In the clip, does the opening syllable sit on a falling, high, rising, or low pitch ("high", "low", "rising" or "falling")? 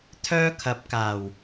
high